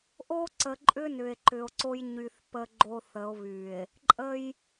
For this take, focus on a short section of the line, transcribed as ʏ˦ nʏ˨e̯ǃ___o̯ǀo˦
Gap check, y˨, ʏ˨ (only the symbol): ʏ˨